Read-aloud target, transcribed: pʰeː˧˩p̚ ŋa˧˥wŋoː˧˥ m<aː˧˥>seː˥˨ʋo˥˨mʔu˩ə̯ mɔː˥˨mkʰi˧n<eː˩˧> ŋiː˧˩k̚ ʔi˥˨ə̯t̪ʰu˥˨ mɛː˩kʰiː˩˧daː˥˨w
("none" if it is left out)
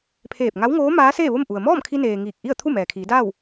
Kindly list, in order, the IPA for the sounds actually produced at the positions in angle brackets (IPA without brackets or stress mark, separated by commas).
aː˧˥, eː˩